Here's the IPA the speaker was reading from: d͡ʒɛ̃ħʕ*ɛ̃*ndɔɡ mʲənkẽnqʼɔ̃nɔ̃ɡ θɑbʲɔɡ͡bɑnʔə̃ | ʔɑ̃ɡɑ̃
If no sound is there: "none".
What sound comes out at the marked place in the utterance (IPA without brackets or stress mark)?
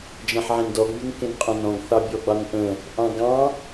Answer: ẽ